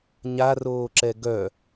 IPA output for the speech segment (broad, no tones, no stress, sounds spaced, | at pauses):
ɲ a r oː ǁ ɛ ɡ œ